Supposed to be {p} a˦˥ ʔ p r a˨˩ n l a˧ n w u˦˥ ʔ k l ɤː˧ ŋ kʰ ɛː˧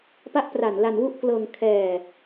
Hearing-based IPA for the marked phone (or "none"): p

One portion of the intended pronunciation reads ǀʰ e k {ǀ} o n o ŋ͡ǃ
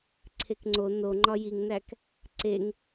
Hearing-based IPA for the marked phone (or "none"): ŋ͡ǀ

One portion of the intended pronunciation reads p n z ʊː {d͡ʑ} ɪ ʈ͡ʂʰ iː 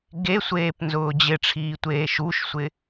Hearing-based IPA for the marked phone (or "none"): d͡ʑ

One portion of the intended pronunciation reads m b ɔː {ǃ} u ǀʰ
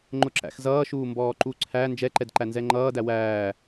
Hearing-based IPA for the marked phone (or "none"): ǃ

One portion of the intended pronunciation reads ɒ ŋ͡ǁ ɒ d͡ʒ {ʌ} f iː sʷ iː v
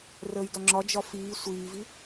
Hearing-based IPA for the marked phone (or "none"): ɒ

